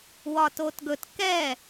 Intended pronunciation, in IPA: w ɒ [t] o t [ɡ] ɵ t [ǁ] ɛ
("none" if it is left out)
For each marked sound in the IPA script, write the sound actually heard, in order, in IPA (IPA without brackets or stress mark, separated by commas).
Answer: t, ɡ, k